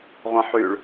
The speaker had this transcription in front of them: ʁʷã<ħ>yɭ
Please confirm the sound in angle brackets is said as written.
yes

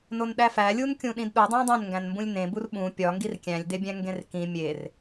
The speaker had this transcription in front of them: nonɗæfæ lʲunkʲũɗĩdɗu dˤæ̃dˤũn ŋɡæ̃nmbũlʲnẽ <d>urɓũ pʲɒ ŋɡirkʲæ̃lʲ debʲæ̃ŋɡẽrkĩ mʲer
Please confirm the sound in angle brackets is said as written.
no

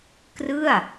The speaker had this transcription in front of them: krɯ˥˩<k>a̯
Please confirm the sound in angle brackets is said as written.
no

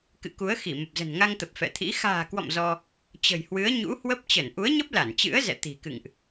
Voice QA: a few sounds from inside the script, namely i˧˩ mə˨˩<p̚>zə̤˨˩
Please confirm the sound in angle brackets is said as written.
yes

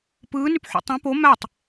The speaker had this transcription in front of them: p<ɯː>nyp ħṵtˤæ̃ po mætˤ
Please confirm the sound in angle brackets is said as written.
yes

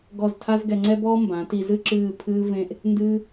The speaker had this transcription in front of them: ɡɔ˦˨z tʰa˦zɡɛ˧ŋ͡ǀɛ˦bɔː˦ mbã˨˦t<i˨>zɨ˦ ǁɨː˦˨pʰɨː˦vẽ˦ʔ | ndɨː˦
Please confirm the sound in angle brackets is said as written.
no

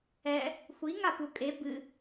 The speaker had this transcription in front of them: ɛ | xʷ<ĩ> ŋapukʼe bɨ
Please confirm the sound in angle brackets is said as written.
no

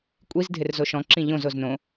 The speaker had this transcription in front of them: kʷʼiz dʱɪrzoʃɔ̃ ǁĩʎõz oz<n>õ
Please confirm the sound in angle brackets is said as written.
yes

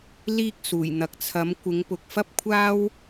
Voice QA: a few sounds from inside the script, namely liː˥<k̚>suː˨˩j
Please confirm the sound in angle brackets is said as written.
yes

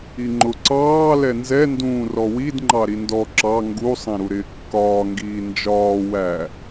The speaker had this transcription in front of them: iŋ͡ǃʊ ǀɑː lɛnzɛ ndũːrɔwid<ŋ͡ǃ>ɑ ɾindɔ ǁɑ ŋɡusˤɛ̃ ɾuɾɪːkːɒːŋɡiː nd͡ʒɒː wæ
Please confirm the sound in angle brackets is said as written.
yes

